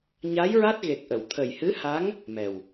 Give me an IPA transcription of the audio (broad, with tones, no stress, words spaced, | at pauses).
ɲa˧˥jɹa˦˥t̚ɣe˨˩k̚ʔə˨˩˨w t̪ʰə˨˩jhɨ˧˥ha˧˥ŋ | mɛ˨˩w